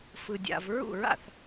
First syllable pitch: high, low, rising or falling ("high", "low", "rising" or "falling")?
low